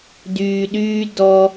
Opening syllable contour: low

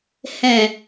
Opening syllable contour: low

